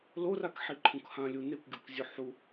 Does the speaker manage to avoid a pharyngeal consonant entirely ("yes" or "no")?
no